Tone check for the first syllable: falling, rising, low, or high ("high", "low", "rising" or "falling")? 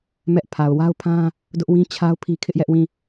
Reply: high